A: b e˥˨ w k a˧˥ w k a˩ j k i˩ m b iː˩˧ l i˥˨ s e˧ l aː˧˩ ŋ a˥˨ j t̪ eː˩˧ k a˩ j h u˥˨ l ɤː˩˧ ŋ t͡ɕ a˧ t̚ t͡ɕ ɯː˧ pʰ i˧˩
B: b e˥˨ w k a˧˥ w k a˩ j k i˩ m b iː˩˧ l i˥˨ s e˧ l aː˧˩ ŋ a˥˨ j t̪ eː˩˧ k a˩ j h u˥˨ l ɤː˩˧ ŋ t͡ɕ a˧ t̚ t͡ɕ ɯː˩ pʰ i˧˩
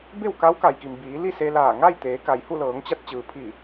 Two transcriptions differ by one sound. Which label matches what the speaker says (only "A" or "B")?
B